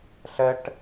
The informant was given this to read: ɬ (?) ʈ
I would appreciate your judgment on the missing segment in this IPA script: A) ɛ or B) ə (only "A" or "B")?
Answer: A